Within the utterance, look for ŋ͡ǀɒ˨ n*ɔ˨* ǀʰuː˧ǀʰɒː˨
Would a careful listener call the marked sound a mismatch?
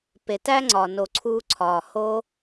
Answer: yes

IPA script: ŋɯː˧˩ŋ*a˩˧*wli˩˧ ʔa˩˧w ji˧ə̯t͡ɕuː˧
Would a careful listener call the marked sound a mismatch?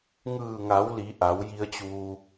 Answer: no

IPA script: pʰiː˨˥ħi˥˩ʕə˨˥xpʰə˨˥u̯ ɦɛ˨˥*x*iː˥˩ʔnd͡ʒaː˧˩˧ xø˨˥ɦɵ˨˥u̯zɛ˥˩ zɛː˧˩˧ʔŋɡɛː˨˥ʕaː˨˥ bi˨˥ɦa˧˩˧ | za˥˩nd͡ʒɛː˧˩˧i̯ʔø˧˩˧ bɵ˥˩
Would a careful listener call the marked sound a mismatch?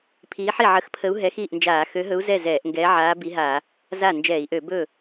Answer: no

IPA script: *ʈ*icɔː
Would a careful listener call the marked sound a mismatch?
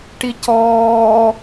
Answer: no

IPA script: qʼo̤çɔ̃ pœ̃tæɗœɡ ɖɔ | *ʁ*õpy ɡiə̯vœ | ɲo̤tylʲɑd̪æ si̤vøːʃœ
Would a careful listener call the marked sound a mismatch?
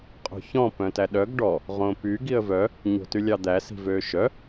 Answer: no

